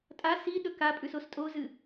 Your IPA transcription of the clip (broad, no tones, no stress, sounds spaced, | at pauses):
tʼ a s i ɗ ɵ k a pʼ ʉ s o s tʼ o z ɨ